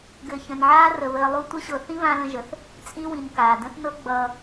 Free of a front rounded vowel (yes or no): yes